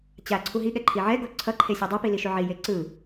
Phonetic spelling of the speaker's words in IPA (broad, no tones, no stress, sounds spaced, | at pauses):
t͡ɕ a ǀʰ u ɦ i ɠ ɛ ǃʰ i ʕ ɛ ɡ o ǀʰ ʌ ǃʰ e sʲ u dˤ e p i l i ʃ u ʕ i j e ǀ ɯ